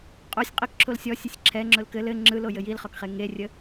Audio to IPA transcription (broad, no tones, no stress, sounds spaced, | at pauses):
qʼ o sʲ qʼ ɘ k ǁʰ o l sʲ ɔ sʲ ɘ sʲ ǁʰ ɛ ŋ͡ǁ ʊ l k ɘ l ɘ ŋ͡ǁ ɯ l o j ɘ j i l χ ɔ k χ e ŋ e rʲ ə